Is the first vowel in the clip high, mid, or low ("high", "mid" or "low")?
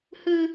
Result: high